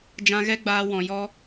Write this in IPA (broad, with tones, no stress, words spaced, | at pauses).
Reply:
d͡ʒã˧ɣɛ˦ɡ͡baː˧ wɔ̃˨jɔ˦